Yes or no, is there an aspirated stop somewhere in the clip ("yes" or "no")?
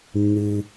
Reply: no